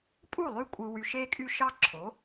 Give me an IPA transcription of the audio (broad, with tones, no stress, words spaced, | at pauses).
pʼu˥˩lˠy˥˩ kʷʼɯ˧wy˧ʃe˥kʼy˥ ʃɑ˥ǁʰo˩˥